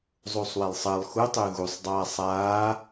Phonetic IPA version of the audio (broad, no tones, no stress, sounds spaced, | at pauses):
zˤ u sˤ w e lˠ sˤ əː lˠ x u tˤ ʉ ɣ u sˤ dˤ aː sˤ aː